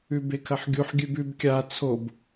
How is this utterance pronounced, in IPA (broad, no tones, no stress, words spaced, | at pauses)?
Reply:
ʉbekʰɐħɡʲuħ ɡʲʉbʉb kʲa t͡sʰob